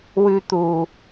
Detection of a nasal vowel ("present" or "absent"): absent